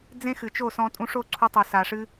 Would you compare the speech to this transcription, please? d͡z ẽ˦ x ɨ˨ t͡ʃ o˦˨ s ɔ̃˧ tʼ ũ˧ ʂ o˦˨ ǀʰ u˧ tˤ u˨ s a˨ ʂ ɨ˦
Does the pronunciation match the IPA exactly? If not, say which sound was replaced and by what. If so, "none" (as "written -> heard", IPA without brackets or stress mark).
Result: none